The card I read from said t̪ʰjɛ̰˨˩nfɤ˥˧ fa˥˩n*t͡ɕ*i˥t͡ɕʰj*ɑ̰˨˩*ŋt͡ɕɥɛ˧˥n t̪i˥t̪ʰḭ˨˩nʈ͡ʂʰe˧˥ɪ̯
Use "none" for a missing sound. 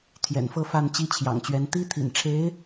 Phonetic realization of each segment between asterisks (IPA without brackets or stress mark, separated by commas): t͡ɕ, ɑ̰˨˩